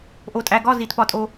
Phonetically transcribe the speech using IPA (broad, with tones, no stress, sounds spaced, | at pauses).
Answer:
ʔ o˨ tʼ æ˨ ɡ ɒ˦˨ z i˨ t p ɒ˦˨ tʼ o˦